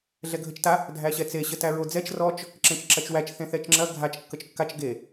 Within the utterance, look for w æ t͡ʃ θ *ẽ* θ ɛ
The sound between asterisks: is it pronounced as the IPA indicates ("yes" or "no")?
yes